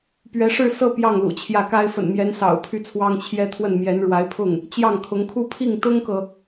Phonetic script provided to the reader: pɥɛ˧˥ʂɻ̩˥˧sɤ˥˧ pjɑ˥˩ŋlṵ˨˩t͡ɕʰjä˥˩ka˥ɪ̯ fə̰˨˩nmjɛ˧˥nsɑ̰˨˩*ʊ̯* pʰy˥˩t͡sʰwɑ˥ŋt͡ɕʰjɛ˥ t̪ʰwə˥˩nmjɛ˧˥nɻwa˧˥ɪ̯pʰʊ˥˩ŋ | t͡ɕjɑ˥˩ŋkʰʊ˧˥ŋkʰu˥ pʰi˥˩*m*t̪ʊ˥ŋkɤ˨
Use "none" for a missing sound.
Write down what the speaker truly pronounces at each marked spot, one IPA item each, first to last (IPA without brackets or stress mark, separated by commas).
ʊ̯, ŋ